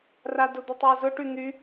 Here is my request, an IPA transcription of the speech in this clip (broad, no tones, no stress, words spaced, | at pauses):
radʊd̪ʊtˤjə zʊʈy n̪y